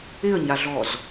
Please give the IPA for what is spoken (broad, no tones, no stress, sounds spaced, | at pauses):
ɪ ə̯ ɲ a ɮ ɔ z